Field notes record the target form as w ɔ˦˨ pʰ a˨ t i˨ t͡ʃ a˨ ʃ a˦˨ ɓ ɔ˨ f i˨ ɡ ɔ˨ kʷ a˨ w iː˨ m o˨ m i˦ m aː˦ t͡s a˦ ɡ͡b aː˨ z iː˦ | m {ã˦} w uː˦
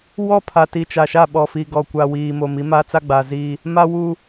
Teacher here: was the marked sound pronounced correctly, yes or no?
no